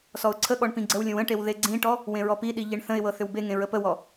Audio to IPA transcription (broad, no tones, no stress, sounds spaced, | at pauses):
s ɔ ʊ̯ ǀʰ ə ɠ ɔ ɳ p ĩ ɡ͡ǀ ə w lʲ ə̃ w ə̃ ʈ e w ð e ɡ͡ǀ ĩ ʈ ɔ | w ẽ ɹ ɔ p i ɗ i ʎ e ɳ θ ə̃ ɪ̯ w ɤ θ ʏ w b e ŋ ẽ ɹ ə p ə w ɔ